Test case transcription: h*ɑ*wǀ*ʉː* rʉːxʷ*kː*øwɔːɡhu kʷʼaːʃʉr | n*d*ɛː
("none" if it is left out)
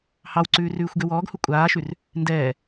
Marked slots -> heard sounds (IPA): ɑ, ʉː, ɡ, d

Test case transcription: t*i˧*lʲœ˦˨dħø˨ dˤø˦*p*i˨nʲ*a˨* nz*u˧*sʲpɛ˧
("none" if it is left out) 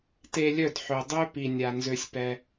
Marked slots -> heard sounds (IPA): e˧, p, a˨, ø˧

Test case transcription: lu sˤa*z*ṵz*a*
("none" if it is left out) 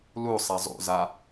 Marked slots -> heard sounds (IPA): zˤ, a

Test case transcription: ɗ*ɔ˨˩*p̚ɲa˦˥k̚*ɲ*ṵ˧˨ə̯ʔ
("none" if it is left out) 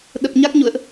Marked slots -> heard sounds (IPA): ə˨˩, ɲ

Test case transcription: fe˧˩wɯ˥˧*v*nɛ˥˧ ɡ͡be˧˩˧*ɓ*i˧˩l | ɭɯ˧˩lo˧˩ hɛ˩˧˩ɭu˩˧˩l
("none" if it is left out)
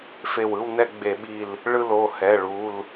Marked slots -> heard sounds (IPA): w, ɓ

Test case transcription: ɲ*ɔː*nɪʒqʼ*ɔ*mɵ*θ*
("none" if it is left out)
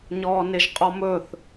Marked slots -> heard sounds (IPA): ɔː, ɔ, θ

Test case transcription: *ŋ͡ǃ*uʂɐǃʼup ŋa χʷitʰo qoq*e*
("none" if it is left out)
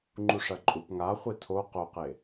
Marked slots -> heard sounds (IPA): ŋ͡ǃ, e

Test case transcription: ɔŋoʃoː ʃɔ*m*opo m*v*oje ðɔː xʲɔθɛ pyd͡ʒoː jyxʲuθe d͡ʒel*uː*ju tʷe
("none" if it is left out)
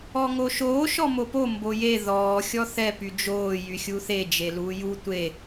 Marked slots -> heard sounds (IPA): m, b, uː

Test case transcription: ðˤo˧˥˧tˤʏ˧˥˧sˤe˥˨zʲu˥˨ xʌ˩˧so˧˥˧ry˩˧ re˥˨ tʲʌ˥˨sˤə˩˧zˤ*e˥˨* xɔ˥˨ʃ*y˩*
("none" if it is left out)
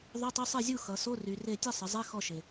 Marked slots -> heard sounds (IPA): e˧˥˧, e˩

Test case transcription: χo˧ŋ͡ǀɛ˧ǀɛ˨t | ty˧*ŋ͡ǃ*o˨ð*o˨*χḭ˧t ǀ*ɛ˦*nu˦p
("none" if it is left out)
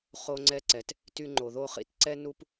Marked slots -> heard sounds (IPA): ŋ͡ǃ, o˧, ɛ˦

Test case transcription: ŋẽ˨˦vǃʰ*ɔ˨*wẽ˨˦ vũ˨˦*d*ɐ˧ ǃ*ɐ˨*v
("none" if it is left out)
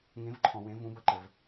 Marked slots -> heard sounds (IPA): ɔ̃˨, b, ə˨

